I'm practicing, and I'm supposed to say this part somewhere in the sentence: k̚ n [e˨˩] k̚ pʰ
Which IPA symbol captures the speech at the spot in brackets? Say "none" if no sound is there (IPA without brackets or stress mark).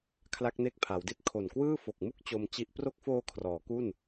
e˦˥